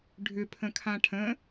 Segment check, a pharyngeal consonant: absent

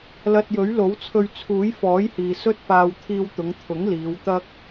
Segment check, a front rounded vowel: absent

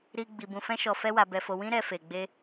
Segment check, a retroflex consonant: absent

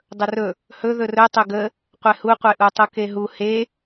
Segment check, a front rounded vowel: absent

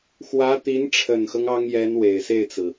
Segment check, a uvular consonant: absent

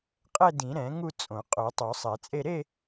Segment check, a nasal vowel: present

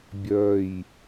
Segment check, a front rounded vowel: present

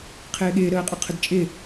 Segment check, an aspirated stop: present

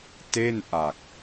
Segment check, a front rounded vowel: absent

